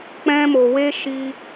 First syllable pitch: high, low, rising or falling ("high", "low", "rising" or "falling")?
high